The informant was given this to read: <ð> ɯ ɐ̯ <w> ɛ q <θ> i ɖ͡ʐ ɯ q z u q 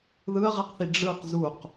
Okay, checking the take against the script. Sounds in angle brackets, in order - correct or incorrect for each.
correct, incorrect: ʁ, correct

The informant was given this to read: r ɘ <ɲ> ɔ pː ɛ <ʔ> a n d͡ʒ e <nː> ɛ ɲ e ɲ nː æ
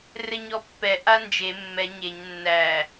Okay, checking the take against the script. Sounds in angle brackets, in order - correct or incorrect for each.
correct, correct, incorrect: mː

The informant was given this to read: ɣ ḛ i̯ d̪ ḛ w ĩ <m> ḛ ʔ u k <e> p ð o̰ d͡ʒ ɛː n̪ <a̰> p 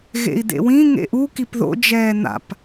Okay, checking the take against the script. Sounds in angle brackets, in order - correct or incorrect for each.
incorrect: ŋ, incorrect: i, correct

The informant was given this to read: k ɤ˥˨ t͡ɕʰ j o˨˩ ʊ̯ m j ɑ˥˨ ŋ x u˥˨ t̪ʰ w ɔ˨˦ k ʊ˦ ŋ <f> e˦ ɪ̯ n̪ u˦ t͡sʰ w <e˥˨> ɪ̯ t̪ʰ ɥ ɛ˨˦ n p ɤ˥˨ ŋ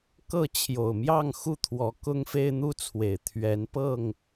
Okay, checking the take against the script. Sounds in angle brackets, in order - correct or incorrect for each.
correct, incorrect: e˨˩

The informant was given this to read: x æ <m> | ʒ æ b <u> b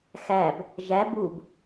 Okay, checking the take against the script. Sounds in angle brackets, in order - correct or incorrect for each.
incorrect: b, correct

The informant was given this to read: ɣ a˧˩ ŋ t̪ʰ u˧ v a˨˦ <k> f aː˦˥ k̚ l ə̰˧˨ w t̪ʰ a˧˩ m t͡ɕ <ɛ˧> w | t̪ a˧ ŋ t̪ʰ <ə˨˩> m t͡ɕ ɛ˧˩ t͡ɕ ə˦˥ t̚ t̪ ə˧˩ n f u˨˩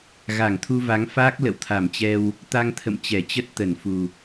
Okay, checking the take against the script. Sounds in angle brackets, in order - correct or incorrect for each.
incorrect: ŋ, correct, incorrect: ə̰˧˨

